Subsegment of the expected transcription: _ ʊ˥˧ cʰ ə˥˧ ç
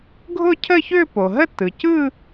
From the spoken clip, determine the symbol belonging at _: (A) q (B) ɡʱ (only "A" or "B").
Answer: B